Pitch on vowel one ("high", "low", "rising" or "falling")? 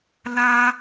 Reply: high